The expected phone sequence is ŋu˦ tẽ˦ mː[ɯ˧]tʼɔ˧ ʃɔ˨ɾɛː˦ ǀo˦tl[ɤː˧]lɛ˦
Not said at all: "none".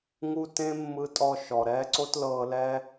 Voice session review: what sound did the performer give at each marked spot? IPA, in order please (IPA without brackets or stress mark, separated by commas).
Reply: ɯ˧, ɤː˧